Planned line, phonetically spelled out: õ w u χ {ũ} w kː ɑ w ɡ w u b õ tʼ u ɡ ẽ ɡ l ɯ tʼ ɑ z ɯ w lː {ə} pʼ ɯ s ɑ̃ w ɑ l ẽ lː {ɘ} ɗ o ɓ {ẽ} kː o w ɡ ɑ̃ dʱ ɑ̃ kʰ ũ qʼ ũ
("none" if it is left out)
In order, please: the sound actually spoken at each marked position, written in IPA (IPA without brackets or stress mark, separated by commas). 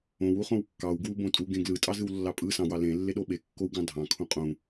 õ, ɑ, e, e